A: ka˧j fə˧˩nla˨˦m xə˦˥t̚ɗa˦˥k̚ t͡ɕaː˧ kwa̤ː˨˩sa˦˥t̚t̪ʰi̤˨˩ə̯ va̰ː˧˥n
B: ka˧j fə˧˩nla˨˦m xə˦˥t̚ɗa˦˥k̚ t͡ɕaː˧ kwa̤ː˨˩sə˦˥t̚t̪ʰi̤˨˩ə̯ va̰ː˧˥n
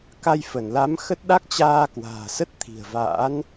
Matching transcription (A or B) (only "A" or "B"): B